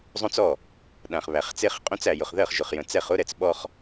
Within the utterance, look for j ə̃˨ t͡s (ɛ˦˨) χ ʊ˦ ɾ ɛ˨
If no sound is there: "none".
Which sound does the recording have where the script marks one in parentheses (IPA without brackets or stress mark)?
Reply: ɛ˦˨